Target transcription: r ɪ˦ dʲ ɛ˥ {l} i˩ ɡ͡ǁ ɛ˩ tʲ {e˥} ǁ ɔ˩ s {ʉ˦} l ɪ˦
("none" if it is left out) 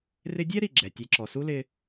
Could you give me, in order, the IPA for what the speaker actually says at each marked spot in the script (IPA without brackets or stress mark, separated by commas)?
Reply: ɾ, e˨, u˦